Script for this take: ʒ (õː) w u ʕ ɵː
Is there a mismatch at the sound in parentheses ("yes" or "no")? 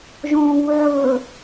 no